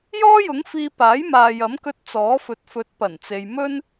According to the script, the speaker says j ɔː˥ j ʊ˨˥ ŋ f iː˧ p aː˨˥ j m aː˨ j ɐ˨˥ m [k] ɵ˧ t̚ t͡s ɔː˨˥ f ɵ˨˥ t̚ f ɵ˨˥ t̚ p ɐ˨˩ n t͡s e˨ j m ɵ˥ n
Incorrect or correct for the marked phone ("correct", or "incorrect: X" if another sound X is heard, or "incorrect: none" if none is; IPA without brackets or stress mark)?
correct